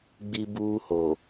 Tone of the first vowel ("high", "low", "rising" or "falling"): high